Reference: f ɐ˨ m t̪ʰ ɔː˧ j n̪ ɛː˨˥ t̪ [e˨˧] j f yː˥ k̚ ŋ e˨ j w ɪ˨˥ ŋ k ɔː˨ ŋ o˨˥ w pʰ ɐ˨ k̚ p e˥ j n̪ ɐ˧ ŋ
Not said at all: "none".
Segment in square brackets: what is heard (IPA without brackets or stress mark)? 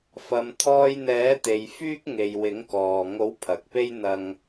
e˨